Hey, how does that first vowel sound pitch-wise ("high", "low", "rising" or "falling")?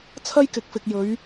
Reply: high